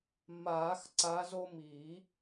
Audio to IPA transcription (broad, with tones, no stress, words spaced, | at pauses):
maː˨˩˦x ǀa˨˦zo˦ mi˨˩˦